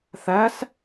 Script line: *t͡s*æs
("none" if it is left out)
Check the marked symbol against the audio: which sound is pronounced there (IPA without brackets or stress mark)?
θ